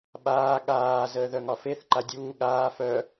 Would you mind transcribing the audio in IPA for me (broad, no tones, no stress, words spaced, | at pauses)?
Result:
ɓaː ɠaː zəːðœŋɒfeθ ǃadʲuː ɠaː fœ